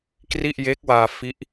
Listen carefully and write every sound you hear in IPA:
k r i˥˩ ʔ j e˦˥ k̚ w aː˧ f i˦˥ ʔ

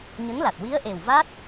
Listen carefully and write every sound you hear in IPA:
ɲ ə˧˥ ŋ l a˨˩ t̚ w i˧˥ ə̯ ʔ e˨˩ w v a˦˥ t̚

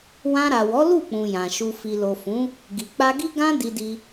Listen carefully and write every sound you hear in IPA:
w ã˧ ɾ a˨ w ɔ˨˦ l u˦˨ k͡p ũ˨ j ã˨ ʃ u˧ f i˨ l o˨ f ũ˨˦ | ɡ i˨ k͡p a˧ ɡ i˦ ɡ ã˦ d i˧ d i˧

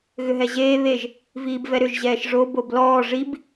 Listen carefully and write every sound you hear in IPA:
ɣ ʏ ɦ ɛ ʑ eː β e ʒ | v iː b v ɛ ɾ ʏ ʒ ʑ ɛː ʃ ʐ o b o b l ɔː ʐ i b

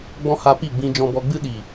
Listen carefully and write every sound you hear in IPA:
ɡ͡b ɔ̃˦ h a˧ p i˦˨ ɡ͡b ĩ˧ d͡ʒ ɔ̃˧ b ɔ˧ ɡ͡b ɨ˦ ɗ i˨

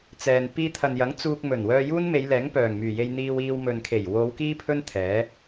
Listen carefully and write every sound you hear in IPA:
t͡s ɛː˨ n p iː˧ t̪ʰ ɐ˨ n j ɐ˨˥ ŋ t͡s uː˧ k̚ m ɵ˨˩ n w œː˧ j uː˥ n m e˨˧ j l ɛː˨˥ ŋ p œː˨˩ ŋ m yː˨˩ j e˧ j n̪ iː˧ w iː˧ w m ɵ˨ n kʰ e˨˩ j w o˨˧ w k iː˥ pʰ ɵ˥ n t̪ʰ ɛː˨˥

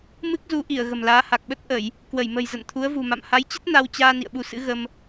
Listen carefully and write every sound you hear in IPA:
m ɨ˦˥ k̚ z u˨˦ ʔ i˧˩ ə̯ ɣ ə̤˨˩ m l aː˨˦ h a˨˩ k̚ ɓ ə˦˥ t̚ ʔ ə˧˩˨ j | k w ə˧˩ j m ə̤˨˩ j z ə̰˧˨ n t̪ʰ u˨˦ ə̯ v ṳ˨˩ m a̰˧˨ m h a˨˦ j t͡ɕ ə˦˥ t̚ n a˧ w t͡ɕ aː˧ n ḭ˧˨ ə̯ ɓ u˧ s ɨ̰˧˥ ɣ ə˧ m

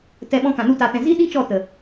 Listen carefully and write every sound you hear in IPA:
t ɛ˧ ɓ ɔ̃˧ k ã˨ n u˧ t a˨ t ɛ̃˨ z i˦ ɗ i˦ t͡ʃ ɔ˦˨ t ə˨

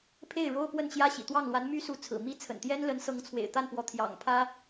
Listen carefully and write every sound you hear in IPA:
pʰ e˥˩ ɪ̯ ɻ o˥ ʊ̯ p w ə˥˩ n t͡ɕ j ä˥ ɕ ḭ˨˩ t̪ w ɑ˥˩ ŋ l w a˧˥ n m y˥ s u˧˥ t͡sʰ ɹ̩˨˩ m i˥ t͡sʰ ə̰˨˩ n t̪ j ɛ˥ n l ə˧˥ n s ɤ˧˥ ŋ t͡sʰ w ḛ˨˩ ɪ̯ t̪ a˥˩ n p w ɔ˧˥ t̪ʰ j ɑ̰˨˩ ŋ pʰ ä˥

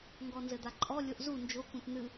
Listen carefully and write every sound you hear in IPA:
ŋ ɡ ɔ n z ɘ d̪ a ǃʼ ɔ lʲ o ʔ z u n d͡ʒ o k ũ t n̪ ɨ

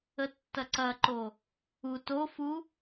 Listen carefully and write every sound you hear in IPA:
ə tː ɐ ǀ ɐ ǃ o | u t o f u

